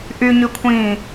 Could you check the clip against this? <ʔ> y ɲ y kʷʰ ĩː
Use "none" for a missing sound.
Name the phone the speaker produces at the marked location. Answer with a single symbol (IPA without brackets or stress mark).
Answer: ʔ